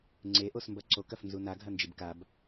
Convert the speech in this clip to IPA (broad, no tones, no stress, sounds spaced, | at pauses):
ŋ͡ǀ e ʔ o s m b ɐ ǀ o k ɐ f n z u n a ɡʱ ɐ n d͡ʒ ɨ b k a b